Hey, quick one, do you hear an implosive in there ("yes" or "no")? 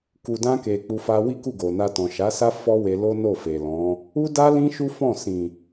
no